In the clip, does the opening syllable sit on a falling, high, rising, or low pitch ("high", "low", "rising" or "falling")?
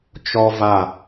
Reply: high